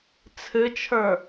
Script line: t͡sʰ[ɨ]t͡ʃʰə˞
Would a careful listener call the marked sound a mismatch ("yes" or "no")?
no